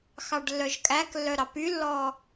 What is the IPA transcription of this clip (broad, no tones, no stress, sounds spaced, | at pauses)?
x ɑ ɖ lː œ ʒ kʼ æ k lː œ ɾ ɑ p y lː ɔː